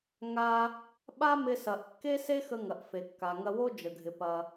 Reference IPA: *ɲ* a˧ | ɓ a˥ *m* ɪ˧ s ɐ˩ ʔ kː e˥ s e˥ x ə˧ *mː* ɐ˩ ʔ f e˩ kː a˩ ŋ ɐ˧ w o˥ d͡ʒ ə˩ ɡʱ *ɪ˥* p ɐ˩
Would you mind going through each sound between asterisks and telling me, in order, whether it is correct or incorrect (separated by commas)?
incorrect, correct, incorrect, incorrect